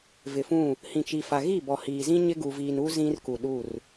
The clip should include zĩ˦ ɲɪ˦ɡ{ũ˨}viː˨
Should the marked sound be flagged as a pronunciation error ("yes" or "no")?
yes